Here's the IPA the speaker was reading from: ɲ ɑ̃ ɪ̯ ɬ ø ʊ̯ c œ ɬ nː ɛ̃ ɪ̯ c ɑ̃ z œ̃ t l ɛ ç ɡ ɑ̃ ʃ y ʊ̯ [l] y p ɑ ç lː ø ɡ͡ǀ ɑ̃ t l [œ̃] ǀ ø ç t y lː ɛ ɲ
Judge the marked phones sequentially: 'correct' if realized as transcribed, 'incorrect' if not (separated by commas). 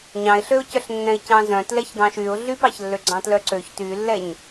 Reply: incorrect, incorrect